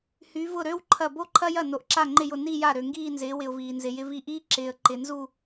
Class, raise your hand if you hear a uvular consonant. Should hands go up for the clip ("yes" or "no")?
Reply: no